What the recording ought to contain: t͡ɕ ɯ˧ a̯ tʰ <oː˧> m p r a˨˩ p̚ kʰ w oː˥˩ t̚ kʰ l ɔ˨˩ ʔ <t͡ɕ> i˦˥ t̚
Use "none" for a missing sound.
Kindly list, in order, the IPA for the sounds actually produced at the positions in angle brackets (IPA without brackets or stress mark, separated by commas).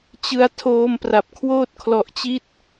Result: oː˧, t͡ɕ